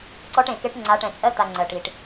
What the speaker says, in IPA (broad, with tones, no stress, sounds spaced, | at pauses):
ǀ ɔ˦ ʈ ẽ˨ k e˦ ʈ ŋ͡ǀ a˨˦ ʈ ɛ̃˨ t͡sʼ ɜ˦ t̪ a˨ ŋ͡ǀ ɜ˨ ʈ i˨ ʈ